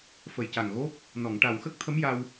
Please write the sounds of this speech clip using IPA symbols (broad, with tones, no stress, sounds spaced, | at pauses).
f ə˨˩ j c a˨˩ ŋ ɣ o˦˥ p̚ | n ɔ˨˩˨ ŋ ʈ a˨˩ w x ə˦˥ k̚ t̪ʰ ə˧˥ m j a˧ w